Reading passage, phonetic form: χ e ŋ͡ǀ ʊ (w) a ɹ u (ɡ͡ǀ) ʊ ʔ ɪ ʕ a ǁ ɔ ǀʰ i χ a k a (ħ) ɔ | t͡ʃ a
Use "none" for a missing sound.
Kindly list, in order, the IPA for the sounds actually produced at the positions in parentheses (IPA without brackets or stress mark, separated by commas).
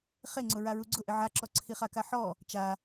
ɹ, ɡ͡ǀ, ħ